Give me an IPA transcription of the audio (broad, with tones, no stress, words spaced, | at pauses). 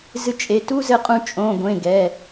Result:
zɨ˧˩t͡ʃʼe˩˧˩ tu˦zɘ˧˩qʼũ˧˩ t͡ʃʼõ˩˧˩ɡʷẽ˩˧˩ ɡɛ˩˧˩